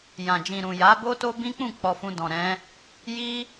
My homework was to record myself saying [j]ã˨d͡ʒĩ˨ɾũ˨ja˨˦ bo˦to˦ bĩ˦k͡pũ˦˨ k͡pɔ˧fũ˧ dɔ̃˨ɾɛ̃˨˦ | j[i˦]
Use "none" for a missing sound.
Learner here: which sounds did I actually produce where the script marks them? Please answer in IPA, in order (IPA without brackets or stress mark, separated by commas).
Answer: j, i˦